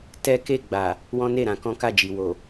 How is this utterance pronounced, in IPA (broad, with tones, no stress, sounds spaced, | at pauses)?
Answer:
t ɛ˦ k e˦˨ ɡ͡b a˨ | w ɔ̃˦ n e˦˨ ɾ ã˧ k ɔ̃˦ k a˦˨ d͡ʒ i˨ w o˨